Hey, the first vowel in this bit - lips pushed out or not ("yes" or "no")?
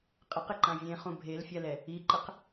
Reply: no